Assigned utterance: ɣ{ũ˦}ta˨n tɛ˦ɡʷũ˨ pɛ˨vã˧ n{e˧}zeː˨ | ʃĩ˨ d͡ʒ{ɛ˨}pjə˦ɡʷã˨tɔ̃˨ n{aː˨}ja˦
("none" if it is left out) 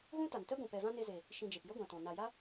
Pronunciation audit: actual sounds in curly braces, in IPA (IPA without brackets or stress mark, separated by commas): ũ˦, e˧, e˨, a˨